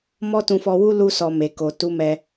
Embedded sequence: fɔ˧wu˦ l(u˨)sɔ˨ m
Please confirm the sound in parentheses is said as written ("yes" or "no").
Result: no